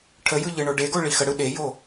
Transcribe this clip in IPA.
ʈʰ ə j ɯ ʎ ɯ ɳ o ɖ e ɡ o ɭ i x ə ɽ ɯ ɗ e j o

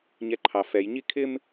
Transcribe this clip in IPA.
ɲ ɛ ǃʰ ɑ f ɛ j ɲ i kʰ ɪ m

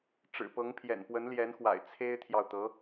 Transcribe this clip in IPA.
ʈ͡ʂ ɻ̩˨˩ p ɤ˧˥ ŋ pʰ j ɛ̰˨˩ n p w ə˧˥ n l j ɛ˧˥ n x w a̰˨˩ ɪ̯ t͡sʰ e˥ ɪ̯ t̪ʰ j ɑ˨ ʊ̯ t̪ ɤ˧˥

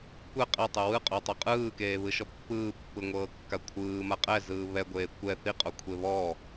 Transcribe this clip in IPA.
kʷ ɛ qʼ ɛ tˤ ɯ w ɯ qʼ o tˤ o qʼ ɯː k eː β ɯ ʃ ɔ pː ɯː pː ɯ ŋʷ ɤː kː a kʷʰ ɯː m a qʼ ɛ z ɯː β ɛ ɡʷ eː kʷ ɛ θ i qʼ o kʷʰ e β ɔ

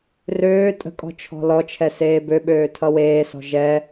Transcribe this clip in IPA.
r øː tʼ ə̤ kʼ ɔ̤ t͡ʃʰ ɔ̤ l ɔ t͡ʃʰ ɛ s eː b ø ɓ øː tʰ ʌ w eː s ɔ̤ ʒ ɛ

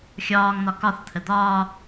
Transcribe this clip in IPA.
xʲ ɒː ŋ n̪ ɒ k ɒ θ t̪ʰ ə d̪ ɒː

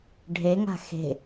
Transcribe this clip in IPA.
ɖʱ e ŋ a̤ x e̤

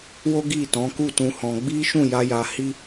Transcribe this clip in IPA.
w o˦ ɡ i˦˨ t ɔ̃˨˦ k u˦˨ t ũ˧ h ɔ̃˧ ɡ͡b i˦ ʃ ũ˦˨ j a˧ j a˧ h i˦

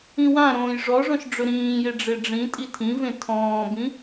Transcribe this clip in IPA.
ĩ w ã ɾ õː j ʐ ɔ ʐ ɔ̃ ʃ ɖ͡ʐ ɵ ɾ ĩː j e ɖ͡ʐ e ɖ͡ʐ ĩ tʼ i tʰ ĩ v ẽ tʰ ɔ̃ː b ĩ

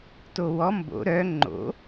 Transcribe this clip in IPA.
t o w ɔ m b o̰ ɾ œ ŋ͡ǃ o̰

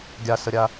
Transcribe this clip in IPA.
ɡʲ a s ə ɾʲ a

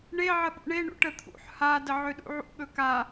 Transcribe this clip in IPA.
ɳ e ʕ ə ɓ ṵ ɳ e ɳ ṵ ʈ ə t̪ʰ ṵ ħ h a d ə ʕ ø ɗ ṵ ʕ ṵ ɠ ɵ k a

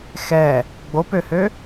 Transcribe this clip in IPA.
x ɛ | ɡ͡b o p ø h ø

